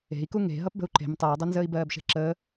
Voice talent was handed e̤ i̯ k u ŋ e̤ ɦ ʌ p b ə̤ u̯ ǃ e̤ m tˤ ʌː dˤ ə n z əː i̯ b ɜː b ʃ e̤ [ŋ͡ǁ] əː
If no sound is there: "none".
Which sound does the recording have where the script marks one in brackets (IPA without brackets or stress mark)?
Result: ǁ